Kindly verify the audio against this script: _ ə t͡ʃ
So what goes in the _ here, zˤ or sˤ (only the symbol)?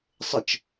sˤ